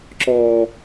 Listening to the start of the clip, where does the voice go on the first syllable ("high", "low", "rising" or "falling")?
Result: high